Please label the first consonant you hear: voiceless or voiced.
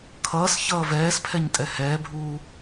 voiceless